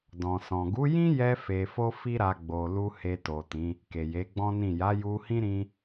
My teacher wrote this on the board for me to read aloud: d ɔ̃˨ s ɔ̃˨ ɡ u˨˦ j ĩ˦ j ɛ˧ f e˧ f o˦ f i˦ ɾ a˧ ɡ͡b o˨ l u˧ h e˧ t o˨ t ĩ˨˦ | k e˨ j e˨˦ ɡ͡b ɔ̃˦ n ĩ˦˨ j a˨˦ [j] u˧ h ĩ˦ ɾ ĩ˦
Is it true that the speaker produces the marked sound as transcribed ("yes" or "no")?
yes